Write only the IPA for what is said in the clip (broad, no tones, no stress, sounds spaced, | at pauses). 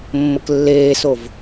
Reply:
mː ə k lː eː s o v